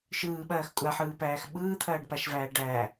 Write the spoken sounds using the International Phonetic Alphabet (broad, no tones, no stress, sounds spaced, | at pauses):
ʃ ɯː ɓ ɐː x kʷʼ a ħ ɯː p æː x ɓ ɯː t̪ʰ ɐː ɖ p a ʃ v æː ɖ æ